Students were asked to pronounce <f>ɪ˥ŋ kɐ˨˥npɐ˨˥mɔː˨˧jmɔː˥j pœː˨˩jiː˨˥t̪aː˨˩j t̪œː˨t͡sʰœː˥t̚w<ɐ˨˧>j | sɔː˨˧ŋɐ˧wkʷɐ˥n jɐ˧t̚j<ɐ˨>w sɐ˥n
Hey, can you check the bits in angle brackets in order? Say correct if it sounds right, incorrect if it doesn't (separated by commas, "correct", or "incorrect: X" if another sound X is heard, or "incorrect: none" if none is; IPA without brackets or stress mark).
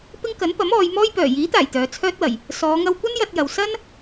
incorrect: p, incorrect: ɐ˨˩, correct